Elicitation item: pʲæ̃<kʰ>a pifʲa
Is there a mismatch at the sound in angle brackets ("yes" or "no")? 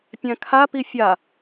no